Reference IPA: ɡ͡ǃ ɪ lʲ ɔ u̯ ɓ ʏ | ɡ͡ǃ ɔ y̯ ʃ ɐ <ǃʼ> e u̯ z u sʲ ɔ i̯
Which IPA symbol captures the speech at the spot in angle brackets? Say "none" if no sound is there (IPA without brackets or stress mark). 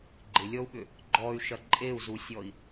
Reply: ǃʼ